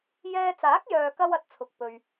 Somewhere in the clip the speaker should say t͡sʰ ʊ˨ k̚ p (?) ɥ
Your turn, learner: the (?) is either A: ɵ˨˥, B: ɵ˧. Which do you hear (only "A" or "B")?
B